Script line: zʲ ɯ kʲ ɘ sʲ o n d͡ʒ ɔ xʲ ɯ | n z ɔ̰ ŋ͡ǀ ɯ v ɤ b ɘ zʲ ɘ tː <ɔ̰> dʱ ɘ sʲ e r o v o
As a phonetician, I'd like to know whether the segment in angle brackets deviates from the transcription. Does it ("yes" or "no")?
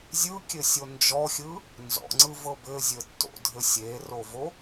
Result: yes